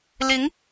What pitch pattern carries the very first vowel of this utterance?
rising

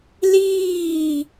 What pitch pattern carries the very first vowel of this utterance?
falling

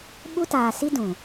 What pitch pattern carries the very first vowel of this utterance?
high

